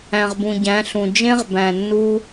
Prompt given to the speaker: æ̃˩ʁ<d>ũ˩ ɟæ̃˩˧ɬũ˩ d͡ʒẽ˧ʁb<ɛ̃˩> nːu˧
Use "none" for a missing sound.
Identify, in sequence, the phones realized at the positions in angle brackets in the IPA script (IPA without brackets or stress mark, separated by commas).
b, æ̃˩